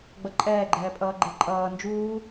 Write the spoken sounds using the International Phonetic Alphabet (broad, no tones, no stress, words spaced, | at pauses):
ɡ͡bʌǃʼɛːɡ͡ǃɛːpʼʌː ɡ͡ǃeǃʼʌː nd͡ʒuː